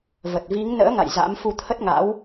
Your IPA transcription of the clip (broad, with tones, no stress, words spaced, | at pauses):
və˨˩t̚vi˨˦ŋ nə̰ː˧˥ŋa̰˧˨j za̰˧˥mfu˧t̪ʰə˦˥t̚ŋa̰˧˥w